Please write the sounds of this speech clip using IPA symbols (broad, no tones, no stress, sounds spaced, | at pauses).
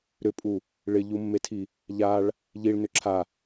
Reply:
ɾ ʏ pʼ u | ɭ ɪ ʎ u mː e tʰ i | ʎ a ɭ | ʎ i ɭ n ʏ ǁʰ a